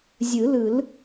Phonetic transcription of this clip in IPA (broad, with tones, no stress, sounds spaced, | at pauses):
zʲ ɯ˨˩˦ l ɯ˨˩˦ l